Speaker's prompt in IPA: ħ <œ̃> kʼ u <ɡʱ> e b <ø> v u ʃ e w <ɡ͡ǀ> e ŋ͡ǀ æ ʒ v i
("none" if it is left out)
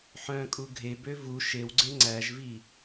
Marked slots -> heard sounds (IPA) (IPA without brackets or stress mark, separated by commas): œ̃, ɡʱ, ø, ɡ͡ǀ